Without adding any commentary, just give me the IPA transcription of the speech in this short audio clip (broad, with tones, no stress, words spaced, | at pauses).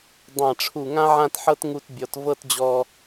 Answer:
dˤã˧˩ʈ͡ʂʰu˧˩ ŋã˥ʕã˥˧tħɤ˥t ŋu˧tbʲɔ˩˧t vɤ˥˧td͡ʑɔ˧